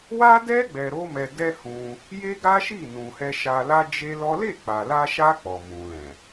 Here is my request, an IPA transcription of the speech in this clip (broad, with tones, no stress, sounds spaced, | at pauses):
w a˦ d ɛ˦ ɡ͡b ɛ˧ ɾ o˦ m ɛ˧ d ɛ˦ h ũ˧ | j e˦ ɡ a˦ ʃ i˦˨ n ũ˨ h ɛ˧ ʃ a˧ l a˦ d͡ʒ e˦ l ɔ˦ l e˦˨ k͡p a˨ l a˧ ʃ a˧ k͡p ɔ˨ m ũ˨ l ɛ̃˨